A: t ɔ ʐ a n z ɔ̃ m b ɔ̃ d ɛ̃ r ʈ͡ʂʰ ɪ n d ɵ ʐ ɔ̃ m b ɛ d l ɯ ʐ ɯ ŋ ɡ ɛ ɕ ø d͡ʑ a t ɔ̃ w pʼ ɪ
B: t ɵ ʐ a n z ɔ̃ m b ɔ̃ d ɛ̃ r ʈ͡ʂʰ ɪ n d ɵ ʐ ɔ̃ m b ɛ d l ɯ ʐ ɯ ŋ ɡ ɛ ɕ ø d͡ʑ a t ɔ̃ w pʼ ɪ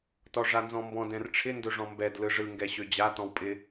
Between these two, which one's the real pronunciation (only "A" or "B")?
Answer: A